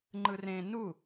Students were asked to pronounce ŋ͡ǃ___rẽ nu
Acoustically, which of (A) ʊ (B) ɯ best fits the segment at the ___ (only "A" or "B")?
B